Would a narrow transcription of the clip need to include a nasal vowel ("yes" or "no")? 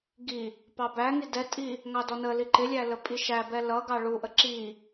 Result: no